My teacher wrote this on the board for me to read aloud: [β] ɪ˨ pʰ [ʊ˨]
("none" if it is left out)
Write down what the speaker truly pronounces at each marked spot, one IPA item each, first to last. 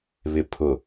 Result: β, ʊ˨

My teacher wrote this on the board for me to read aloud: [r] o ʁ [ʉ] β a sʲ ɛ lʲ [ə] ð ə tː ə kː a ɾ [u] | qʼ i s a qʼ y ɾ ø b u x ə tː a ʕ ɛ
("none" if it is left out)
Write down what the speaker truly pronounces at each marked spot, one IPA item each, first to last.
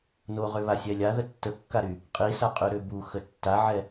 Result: n, ø, a, y

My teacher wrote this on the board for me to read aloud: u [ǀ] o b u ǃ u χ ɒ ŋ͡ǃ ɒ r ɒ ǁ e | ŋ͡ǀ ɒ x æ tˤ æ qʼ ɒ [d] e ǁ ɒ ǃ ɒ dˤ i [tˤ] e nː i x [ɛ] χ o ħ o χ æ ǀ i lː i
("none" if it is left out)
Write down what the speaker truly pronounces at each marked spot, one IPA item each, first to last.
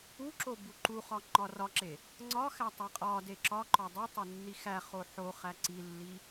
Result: ǁ, d, tˤ, æ

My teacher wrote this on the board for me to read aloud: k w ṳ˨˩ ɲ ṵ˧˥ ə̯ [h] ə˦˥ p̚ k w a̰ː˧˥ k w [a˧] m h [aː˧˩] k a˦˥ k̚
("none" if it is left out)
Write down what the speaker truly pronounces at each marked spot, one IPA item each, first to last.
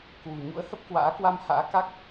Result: h, a˧, a̰ː˧˥

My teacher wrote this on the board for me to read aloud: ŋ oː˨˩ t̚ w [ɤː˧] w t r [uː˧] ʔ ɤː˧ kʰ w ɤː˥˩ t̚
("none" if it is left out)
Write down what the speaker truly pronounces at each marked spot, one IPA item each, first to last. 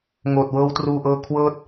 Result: ɤː˧, uː˧

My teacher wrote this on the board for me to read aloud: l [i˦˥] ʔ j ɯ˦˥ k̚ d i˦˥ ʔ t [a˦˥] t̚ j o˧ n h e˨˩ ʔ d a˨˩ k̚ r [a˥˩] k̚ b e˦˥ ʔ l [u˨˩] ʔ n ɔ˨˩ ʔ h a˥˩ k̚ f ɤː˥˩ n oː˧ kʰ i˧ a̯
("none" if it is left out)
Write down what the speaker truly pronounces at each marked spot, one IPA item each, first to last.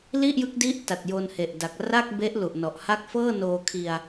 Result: i˥˩, a˨˩, a˥˩, u˨˩

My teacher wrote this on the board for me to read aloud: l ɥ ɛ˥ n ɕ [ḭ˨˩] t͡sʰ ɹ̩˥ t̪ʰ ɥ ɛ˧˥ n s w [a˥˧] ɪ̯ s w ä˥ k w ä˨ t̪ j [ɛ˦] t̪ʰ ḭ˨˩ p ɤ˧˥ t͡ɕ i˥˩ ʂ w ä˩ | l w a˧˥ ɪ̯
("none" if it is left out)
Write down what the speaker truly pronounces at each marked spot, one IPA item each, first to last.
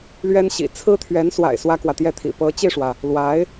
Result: ḭ˨˩, a̰˨˩, ɛ˥˩

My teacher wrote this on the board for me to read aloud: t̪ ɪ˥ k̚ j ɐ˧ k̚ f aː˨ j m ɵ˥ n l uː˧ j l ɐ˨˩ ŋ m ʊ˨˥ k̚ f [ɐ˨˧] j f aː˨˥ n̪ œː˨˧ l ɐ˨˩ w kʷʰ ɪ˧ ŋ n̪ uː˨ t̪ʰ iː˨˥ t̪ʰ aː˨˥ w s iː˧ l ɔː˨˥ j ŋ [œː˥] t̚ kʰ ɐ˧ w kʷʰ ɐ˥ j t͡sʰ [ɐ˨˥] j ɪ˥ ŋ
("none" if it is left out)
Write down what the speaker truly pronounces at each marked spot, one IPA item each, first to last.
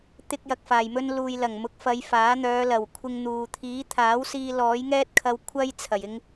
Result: ɐ˨˧, ɛː˥, ɐ˨˩

